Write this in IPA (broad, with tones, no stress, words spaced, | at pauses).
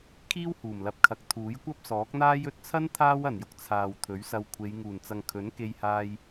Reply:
kʰiː˥whuː˨˩mlɐ˨p̚kʰɐ˨k̚ t̪ʰuː˨˥jkʷɐ˥p̚sɔː˨˥k̚n̪aː˥j ɵ˨t̚t͡sʰɐ˥n t̪ʰaː˥wɐ˨˩njʊ˧k̚ t͡sʰaː˨wt̪ʰɵ˨˥ɥsɐ˧wkʷʰe˨˧j ŋuː˨˩nt͡sɐ˨ŋkʰɵ˨˥n ke˧jhaː˧j